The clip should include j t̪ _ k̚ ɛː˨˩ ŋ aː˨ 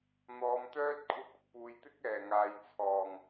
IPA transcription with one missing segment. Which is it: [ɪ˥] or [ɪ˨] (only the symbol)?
ɪ˥